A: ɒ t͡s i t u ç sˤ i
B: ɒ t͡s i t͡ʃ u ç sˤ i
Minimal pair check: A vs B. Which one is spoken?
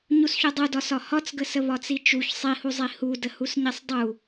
B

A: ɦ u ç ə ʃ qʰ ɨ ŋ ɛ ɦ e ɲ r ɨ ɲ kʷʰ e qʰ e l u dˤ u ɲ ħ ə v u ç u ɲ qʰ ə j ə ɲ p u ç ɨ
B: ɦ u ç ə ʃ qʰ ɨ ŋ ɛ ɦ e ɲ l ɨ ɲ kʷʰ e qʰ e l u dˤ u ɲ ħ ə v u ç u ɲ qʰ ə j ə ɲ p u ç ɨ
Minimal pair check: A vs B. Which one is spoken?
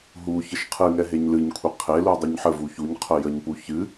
B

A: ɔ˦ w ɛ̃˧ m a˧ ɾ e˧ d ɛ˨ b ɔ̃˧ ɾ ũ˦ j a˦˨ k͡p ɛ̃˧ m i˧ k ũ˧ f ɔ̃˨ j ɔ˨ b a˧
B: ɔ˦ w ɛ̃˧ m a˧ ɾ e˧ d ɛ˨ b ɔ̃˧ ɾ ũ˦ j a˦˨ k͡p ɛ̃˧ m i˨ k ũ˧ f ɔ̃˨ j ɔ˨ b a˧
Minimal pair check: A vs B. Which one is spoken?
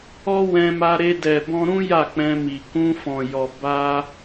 B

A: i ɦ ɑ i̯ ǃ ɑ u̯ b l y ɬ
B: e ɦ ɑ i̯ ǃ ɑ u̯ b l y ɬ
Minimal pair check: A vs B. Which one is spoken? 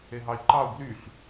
B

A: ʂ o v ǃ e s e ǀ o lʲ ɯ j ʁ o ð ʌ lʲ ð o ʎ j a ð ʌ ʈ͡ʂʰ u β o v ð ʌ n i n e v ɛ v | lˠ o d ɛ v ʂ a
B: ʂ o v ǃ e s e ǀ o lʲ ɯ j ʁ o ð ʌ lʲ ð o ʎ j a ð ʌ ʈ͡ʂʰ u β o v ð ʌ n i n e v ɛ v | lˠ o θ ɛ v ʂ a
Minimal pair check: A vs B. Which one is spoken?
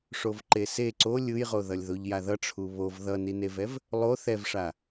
B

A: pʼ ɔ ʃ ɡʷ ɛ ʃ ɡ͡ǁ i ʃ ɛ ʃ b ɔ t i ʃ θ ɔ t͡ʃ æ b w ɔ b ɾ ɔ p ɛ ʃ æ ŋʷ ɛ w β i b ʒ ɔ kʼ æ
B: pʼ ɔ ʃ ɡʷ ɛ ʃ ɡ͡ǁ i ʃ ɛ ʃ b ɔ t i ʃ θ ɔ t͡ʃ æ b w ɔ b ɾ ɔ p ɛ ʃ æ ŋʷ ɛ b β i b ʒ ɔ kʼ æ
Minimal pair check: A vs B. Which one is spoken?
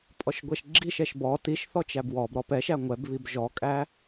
B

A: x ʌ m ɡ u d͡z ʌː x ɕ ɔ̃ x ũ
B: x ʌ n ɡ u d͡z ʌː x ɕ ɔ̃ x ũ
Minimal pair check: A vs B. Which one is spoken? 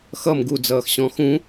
A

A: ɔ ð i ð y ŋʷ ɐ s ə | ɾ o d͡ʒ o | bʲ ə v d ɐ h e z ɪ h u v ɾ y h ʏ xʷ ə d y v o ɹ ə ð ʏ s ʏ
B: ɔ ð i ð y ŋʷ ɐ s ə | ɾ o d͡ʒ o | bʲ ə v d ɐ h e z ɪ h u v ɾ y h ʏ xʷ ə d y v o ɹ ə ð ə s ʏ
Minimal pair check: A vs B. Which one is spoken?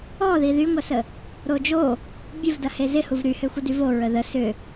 B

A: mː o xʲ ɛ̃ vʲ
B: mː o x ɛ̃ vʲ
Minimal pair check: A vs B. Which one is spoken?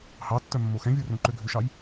B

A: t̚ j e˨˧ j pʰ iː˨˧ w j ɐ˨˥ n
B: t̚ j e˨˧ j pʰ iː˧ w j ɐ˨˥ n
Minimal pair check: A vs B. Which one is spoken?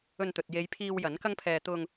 B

